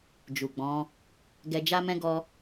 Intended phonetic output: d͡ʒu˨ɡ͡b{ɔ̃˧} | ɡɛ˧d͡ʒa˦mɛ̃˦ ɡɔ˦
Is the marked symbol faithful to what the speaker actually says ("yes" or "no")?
no